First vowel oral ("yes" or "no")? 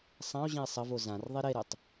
no